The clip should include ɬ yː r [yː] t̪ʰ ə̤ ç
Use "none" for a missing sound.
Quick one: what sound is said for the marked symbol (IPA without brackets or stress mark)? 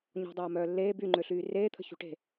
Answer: eː